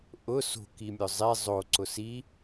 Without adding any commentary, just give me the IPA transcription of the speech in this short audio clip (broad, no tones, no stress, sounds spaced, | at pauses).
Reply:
ʔ ʊ s o̤ k i mʲ ʊ zˤ e zˤ o ǀ ʊ s i